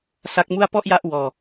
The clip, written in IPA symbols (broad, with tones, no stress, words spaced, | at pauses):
sa˦˥k̚mu˥˩a̯ pɔ˥˩ʔja˦˥ʔ wɔː˧